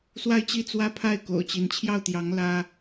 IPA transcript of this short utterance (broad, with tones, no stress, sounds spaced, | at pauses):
s w a˥˧ ɪ̯ t͡ɕ i˥˩ t͡s w ä˥ pʰ a˥˩ ɪ̯ k o̰˨˩ ʊ̯ t͡ɕ i˧˥ n t͡ɕʰ j ɑ˥˩ ʊ̯ t̪ j ɑ˧˥ ŋ l ä˥